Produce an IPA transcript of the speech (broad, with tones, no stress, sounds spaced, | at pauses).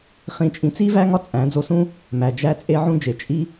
χ ĩ˦˨ t͡ʃʼ ĩ˦ t͡s i˦ v æ˦ ŋ ɒ˦ t͡sʼ æ̃˨˦ d͡z o˧ s ũ˦ | m æ˨ d͡ʒ æ˧ t͡sʼ e˦ ʕ ũ˦ d͡ʒ e˨ t͡ʃʼ i˧